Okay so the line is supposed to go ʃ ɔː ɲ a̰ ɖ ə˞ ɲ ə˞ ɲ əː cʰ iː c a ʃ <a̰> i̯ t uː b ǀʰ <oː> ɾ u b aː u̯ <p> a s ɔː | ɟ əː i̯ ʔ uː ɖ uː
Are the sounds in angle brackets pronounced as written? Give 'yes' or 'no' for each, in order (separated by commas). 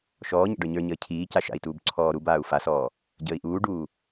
yes, no, no